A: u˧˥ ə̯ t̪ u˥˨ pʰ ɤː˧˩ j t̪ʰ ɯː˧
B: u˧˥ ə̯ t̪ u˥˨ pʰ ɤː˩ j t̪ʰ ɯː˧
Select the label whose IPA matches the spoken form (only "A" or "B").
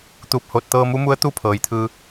B